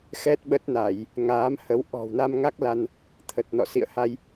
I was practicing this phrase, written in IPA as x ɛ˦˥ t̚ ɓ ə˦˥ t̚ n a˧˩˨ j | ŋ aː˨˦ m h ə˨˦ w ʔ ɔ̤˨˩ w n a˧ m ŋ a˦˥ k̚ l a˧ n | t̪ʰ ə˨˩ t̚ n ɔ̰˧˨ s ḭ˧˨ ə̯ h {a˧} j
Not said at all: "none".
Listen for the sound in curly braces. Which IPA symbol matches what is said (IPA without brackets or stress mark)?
a˧